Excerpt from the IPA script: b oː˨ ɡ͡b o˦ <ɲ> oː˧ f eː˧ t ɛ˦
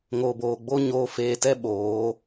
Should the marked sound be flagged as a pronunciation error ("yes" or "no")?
no